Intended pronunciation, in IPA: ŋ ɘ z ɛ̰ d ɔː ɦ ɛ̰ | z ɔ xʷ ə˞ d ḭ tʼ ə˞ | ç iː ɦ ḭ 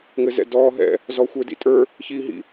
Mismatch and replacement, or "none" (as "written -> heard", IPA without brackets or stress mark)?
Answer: none